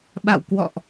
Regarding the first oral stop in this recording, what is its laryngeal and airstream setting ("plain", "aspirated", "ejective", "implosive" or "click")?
implosive